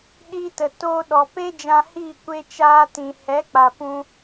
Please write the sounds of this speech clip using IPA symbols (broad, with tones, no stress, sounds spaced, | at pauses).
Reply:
ɗ iː˧ t ə˨ t oː˧ ɗ ɔ˨ p e˦ d͡ʒ ã˧ h iː˦˨ kʷ e˧ t͡ʃ aː˧ t ĩ˨ h ɛ˨˦ k͡p a˨ p ũ˧